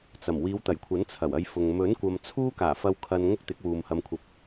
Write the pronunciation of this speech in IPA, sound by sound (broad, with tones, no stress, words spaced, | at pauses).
t͡sɐ˨˩m wiː˨˧wt̪ɐ˨˩jkʷʰɐ˨˥n t͡sʰɐ˨˩wɐ˧jfʊ˨ŋ mɵ˨˥nkʷɐ˨m t͡sʰuː˥kaː˨˩fɐ˧w kʰɐ˧n ŋʊ˥k̚t̪ɪ˨˥k̚ wuː˨mhɐ˧mkʷʰɐ˧p̚